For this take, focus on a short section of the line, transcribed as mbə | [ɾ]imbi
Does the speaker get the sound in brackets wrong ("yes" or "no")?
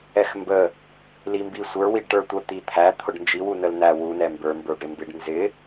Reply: yes